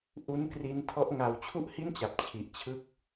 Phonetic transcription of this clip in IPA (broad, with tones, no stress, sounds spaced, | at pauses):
ʔ u˦˥ n k r i˦˥ n tʰ ɔ˦˥ ʔ ŋ a˧ w t͡ɕʰ u˥˩ ʔ h i˥˩ n t͡ɕ a˨˩ p̚ t͡ɕʰ i˨˩ ʔ t͡ɕʰ ɯ˥˩ k̚